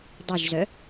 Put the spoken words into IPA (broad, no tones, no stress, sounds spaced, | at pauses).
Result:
dˤ ɵ ʒ z œ